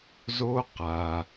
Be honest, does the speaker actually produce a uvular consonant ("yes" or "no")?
yes